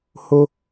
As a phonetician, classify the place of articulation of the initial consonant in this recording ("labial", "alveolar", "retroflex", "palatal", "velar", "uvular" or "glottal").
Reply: glottal